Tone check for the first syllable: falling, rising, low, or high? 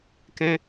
high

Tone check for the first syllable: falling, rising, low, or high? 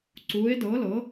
rising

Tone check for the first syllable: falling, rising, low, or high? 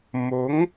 rising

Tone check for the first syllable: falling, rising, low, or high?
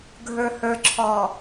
low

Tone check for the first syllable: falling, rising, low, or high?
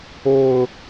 low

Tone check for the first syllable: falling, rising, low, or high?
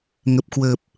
low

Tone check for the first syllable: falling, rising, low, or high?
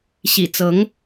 low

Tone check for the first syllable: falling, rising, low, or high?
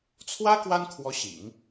high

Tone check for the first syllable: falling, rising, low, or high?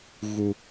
low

